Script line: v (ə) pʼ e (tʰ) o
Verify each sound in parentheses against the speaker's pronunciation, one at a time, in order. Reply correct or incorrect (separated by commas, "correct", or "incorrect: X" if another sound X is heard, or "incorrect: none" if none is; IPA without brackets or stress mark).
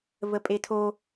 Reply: correct, correct